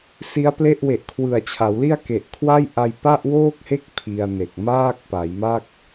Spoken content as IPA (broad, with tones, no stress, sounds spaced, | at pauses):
s i˦˥ a̯ p l e˥˩ ʔ w e˨˩ ʔ kʰ w ɯ˨˩ a̯ t͡ɕʰ a˩˦ w l i˥˩ a̯ k e˨˩ ʔ kʰ w a˥˩ j ʔ a˧ j p a˥˩ ʔ w oː˥˩ k̚ h e˥˩ k̚ pʰ i˧ a̯ n e˨˩ k̚ m aː˥˩ k̚ p a˩˦ j m a˥˩ k̚